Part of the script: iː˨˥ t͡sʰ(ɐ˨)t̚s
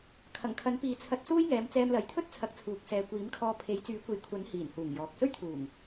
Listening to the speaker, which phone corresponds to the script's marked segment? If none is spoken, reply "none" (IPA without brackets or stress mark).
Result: ɐ˧